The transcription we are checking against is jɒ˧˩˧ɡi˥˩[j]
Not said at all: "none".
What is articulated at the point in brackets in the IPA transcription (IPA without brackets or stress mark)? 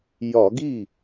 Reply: none